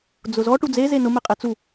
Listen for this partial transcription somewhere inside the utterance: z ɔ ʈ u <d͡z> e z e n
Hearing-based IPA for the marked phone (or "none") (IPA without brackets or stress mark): d͡z